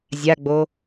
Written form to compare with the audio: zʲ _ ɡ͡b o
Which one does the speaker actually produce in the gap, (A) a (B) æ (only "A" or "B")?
A